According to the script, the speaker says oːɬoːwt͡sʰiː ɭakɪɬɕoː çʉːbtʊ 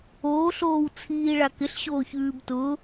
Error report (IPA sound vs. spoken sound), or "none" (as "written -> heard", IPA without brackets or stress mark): none